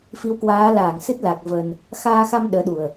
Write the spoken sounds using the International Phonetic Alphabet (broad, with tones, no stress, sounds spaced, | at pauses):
f i˨˦ w k w aː˨˦ l aː˧˩ ŋ s ɨ˦˥ t̚ l a˨˩ k̚ v ə˧ n | x aː˧ x a˧ m ɗ əː˨˦ ɗ u˨˩ ə̯